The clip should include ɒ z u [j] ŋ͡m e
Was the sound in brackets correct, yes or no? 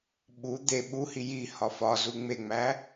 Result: no